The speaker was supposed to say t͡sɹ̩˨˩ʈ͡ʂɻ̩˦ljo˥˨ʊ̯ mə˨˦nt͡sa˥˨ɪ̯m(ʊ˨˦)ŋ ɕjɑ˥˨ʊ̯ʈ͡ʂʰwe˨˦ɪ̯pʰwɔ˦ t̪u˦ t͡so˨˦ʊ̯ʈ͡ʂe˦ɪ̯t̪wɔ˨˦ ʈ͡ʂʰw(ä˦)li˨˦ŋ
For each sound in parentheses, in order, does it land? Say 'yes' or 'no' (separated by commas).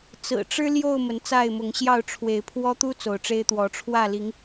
yes, no